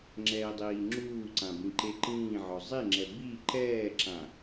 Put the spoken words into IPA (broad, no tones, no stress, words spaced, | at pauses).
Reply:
ŋ͡ǁɛːdˤiːŋ͡ǁuːǀã bĩǃeǃĩːʕɔ zˤiŋ͡ǁɛ bi ǃɛːǁã